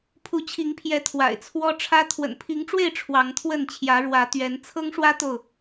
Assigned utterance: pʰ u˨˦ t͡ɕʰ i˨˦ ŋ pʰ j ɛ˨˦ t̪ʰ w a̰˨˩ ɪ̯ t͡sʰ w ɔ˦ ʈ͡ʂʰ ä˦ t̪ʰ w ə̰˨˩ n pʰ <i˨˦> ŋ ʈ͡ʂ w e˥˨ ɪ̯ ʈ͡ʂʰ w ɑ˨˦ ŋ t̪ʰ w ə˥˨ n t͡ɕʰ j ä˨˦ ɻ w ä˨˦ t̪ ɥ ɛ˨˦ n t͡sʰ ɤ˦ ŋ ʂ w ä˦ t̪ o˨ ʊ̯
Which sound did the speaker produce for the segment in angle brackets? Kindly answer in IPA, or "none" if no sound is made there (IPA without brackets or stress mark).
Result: i˨˦